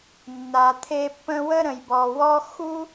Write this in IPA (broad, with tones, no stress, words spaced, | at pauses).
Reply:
nːa˨t̪ʰe˦ pːə̃˦wə˥ ɾə̃˨jbɔ˨wɔ˥ xu˥